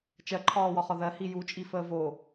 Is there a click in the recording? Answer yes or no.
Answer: yes